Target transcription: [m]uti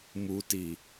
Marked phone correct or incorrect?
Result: correct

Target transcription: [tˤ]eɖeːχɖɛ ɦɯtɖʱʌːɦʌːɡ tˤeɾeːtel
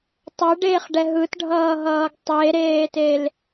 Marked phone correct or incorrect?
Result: correct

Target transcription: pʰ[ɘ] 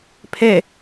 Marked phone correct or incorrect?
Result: incorrect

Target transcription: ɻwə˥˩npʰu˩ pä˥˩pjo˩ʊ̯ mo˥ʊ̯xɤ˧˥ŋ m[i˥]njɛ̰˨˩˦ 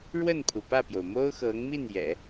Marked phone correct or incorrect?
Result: incorrect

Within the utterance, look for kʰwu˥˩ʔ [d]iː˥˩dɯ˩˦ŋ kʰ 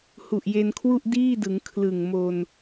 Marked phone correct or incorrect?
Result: correct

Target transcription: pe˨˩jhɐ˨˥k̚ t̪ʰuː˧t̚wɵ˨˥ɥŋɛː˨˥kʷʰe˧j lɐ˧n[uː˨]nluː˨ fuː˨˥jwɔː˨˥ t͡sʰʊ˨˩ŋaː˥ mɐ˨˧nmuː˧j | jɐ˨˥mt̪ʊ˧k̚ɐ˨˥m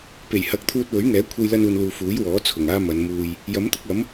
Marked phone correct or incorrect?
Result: correct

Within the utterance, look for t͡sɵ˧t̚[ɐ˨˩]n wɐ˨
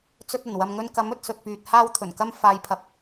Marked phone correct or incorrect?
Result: correct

